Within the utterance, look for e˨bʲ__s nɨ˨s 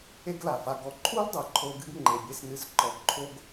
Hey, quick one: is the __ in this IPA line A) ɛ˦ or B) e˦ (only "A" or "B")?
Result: B